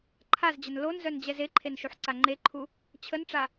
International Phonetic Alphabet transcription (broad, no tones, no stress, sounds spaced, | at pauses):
ǃʰ a z d͡ʑ ə n l o n z œ n d͡ʑ ɛ z e ǃʰ e n ʃ u ħ ǀ a ŋ͡ǃ e ǃʰ u | t͡ɕʰ ə n ʈ͡ʂ a